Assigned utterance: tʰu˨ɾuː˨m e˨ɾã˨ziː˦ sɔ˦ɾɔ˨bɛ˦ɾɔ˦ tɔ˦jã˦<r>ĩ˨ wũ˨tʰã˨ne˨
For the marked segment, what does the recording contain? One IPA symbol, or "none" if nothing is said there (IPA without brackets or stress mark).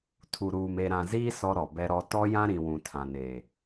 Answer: ɾ